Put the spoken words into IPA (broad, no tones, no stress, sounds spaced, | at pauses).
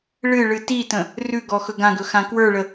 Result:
ɭ ɨ ɭ ɨ t i t ə̃ | r ʉ ɡ ɔ x ɵ ɡ ã ɡ ɵ x ã k w ə˞ ɭ ə